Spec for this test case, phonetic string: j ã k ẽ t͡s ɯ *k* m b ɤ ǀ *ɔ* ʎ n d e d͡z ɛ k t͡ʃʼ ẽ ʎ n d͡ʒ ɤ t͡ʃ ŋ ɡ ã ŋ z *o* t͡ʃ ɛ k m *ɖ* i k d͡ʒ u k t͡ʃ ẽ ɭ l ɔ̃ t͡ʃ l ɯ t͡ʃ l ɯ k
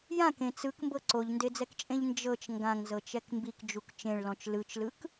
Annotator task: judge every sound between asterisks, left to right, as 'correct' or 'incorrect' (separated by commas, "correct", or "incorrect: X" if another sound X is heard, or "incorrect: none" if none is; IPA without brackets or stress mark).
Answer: correct, incorrect: o, incorrect: ɤ, incorrect: b